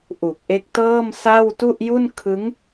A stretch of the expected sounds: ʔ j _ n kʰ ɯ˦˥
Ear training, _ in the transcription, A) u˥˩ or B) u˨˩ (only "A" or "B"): A